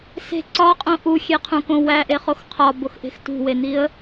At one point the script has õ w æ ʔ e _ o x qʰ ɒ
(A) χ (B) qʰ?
A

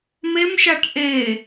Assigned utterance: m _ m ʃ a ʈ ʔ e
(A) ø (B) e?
B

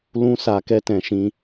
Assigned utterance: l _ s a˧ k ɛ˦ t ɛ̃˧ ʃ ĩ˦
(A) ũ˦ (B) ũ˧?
A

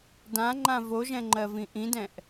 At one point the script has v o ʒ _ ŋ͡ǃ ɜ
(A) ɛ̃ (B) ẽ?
A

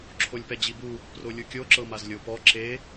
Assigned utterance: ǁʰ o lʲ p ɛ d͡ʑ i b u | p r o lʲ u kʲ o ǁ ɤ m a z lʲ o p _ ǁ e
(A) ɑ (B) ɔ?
B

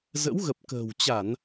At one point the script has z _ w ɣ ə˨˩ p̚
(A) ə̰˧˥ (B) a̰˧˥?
A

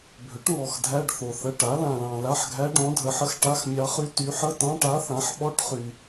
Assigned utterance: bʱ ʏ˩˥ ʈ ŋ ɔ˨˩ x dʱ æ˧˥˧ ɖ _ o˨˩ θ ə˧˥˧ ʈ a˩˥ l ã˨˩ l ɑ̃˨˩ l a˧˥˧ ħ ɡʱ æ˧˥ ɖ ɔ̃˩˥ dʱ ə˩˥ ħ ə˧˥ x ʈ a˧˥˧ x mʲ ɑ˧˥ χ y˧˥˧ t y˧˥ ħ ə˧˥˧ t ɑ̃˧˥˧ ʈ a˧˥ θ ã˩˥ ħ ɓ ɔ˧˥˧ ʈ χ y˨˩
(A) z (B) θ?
B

